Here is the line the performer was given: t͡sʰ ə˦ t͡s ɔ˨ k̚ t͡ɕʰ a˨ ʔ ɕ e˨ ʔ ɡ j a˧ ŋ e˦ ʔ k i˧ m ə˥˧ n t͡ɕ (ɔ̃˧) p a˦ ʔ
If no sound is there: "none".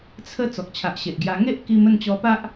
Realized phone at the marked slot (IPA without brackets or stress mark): ɔ˧